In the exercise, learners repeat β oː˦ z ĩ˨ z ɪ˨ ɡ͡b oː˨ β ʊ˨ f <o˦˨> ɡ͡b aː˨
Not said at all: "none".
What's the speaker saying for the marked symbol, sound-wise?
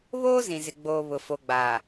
o˨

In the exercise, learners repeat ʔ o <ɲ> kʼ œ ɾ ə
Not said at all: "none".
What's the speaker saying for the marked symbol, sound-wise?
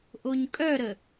ɲ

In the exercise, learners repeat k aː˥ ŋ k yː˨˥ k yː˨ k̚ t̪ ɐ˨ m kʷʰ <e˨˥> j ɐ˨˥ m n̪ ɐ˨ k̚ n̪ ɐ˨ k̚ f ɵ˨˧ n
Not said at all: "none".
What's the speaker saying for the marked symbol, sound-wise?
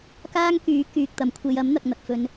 e˧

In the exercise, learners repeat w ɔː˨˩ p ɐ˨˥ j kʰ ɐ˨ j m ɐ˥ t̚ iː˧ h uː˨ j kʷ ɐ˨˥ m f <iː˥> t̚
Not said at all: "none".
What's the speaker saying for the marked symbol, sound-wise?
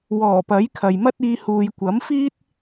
iː˥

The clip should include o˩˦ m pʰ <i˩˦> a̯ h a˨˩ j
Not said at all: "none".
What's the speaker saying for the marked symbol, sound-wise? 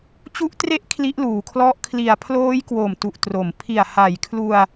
i˨˩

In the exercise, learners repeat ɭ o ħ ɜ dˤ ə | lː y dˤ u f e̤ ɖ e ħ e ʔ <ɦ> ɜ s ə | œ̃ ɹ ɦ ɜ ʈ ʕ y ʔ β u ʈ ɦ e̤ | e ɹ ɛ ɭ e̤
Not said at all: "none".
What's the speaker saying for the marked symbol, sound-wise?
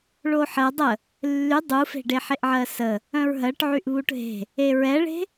ʕ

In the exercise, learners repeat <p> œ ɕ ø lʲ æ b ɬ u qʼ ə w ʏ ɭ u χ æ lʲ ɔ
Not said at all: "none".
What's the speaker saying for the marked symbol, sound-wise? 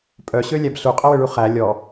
pʼ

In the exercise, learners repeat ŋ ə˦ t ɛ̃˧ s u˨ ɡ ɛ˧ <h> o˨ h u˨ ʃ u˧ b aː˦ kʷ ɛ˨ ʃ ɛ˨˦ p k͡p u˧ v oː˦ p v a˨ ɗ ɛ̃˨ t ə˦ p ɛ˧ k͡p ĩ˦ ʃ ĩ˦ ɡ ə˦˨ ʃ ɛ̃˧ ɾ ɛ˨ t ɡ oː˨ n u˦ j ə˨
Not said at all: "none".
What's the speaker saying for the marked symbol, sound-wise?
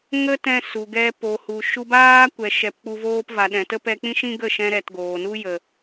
p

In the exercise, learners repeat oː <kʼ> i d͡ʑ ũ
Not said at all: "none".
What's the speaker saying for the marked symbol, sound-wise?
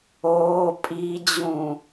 pʼ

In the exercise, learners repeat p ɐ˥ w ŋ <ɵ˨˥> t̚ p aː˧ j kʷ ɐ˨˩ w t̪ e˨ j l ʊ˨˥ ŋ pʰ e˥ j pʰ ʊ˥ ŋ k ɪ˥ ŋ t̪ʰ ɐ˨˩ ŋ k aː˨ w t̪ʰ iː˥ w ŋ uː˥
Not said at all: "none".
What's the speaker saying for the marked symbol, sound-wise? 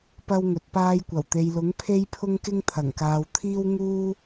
ɵ˨˥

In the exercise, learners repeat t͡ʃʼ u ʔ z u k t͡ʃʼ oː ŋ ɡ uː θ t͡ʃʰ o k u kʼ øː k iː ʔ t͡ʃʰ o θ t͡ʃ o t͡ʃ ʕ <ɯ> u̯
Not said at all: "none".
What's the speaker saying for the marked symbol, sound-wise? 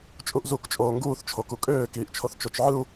ɯ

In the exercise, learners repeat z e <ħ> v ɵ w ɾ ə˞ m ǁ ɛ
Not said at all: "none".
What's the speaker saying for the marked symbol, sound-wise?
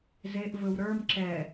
ʔ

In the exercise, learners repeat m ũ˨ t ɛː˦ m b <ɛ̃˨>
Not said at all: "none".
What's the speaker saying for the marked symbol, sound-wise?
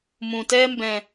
ɛ̃˨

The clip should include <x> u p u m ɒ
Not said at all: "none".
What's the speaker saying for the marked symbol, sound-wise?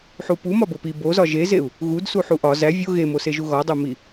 ħ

